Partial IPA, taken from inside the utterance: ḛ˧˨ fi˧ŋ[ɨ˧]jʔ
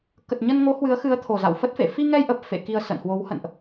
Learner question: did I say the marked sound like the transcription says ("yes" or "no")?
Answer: no